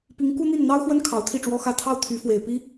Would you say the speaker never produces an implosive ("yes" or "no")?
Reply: yes